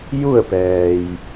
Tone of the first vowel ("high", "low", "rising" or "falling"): falling